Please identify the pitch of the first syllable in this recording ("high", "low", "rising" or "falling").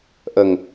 low